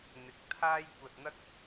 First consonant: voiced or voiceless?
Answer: voiced